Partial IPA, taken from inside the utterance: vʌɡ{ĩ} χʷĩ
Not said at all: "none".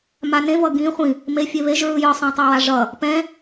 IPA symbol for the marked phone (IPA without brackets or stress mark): ĩ